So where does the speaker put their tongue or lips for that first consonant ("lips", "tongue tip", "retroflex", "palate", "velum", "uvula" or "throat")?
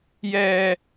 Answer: palate